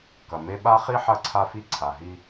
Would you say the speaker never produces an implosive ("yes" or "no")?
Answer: no